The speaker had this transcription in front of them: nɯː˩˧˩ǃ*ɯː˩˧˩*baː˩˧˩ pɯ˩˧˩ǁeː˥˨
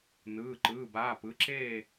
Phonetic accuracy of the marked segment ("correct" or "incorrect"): correct